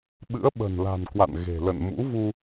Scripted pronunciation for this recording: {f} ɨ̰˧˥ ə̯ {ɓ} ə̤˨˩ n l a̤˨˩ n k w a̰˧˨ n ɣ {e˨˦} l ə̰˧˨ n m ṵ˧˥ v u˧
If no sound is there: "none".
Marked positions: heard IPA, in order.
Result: ɓ, ɓ, e̤˨˩

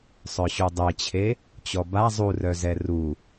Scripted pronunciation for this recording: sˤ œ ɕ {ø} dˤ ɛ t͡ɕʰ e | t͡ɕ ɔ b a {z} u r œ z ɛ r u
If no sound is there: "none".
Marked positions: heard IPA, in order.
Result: u, zˤ

